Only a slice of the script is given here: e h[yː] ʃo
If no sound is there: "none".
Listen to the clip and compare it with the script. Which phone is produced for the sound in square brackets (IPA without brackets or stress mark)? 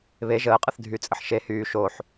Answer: yː